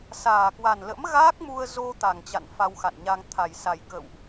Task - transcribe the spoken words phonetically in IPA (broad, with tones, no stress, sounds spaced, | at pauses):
s aː˨˩ k w a˨˩ n l ə̰˧˥ m ɣ a˦˥ k̚ m u˧ ə̯ z o˧ t̪ a˨˩ ŋ t͡ɕ a̰˧˨ n f a˧ w x a̰˧˨ n ɲ a˧ ŋ t̪ʰ a˨˩ j s a˨˩ j k ə̰˧˨ w ʔ